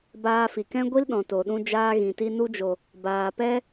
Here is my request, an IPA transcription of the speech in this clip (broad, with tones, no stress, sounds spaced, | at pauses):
b aː˧ f i˨ k ɛ̃˦ ɡʷ i˦ l ɗ ɔ̃˨ t o˨ ɗ ũ˧ d͡ʒ aː˧ ɣ ĩ˨ t i˧ n u˧ d͡ʒ o˨ | b aː˨ p ɛ˦